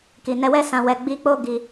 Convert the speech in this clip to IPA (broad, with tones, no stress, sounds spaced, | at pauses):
k i˨ n ɛ˧ w ɛ˦ s ã˧ w ɛ˧ ɡ͡b i˦ k͡p o˦ ɡ i˧